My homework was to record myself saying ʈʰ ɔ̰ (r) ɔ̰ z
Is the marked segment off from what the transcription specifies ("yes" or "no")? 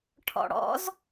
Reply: yes